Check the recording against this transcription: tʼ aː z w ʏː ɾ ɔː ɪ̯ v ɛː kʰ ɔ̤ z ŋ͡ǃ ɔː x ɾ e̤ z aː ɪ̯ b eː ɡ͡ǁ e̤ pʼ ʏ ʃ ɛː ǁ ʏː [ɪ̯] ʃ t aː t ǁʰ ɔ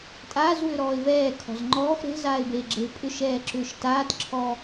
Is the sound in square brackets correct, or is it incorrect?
incorrect